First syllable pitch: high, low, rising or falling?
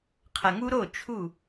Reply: low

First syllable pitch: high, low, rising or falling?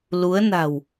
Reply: rising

